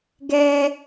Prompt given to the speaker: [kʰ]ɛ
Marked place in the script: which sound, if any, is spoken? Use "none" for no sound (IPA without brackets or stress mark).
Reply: ɡ